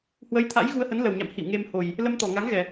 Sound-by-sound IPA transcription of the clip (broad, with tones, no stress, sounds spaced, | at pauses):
h w ə˨˦ j t̪ʰ a̰˧˥ j ɣ u˧ ə̯ h ə˨˦ n l ə˨˩ w ɲ a̰˧˨ m h ḭ˧˨ w ŋ e˧ m h o˨˩ j | l ə˧ m t̪ ɔ˨˩ ŋ a˨˦ ŋ ɣ ɛ˨˩